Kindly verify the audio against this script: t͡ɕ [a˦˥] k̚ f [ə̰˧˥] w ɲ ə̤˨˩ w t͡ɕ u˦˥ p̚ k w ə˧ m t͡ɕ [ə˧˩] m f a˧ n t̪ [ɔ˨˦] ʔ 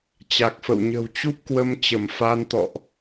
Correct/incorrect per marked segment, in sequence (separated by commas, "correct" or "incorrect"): incorrect, incorrect, correct, incorrect